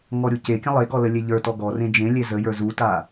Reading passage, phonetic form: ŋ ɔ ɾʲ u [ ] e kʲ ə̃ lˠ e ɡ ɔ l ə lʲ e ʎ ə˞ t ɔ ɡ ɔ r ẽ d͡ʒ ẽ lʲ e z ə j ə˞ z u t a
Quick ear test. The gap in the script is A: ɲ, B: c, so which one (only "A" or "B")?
B